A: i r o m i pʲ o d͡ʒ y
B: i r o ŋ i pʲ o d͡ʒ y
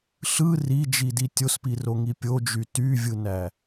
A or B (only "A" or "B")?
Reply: B